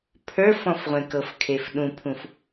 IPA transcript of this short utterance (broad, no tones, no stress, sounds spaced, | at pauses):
pʰ ə˞ f ɔ̃ f ʁʷ ẽ k ɤ f kʰ e f ɗ ũ pʰ ũ f